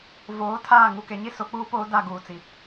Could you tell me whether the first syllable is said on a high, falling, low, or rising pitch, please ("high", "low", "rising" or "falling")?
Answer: rising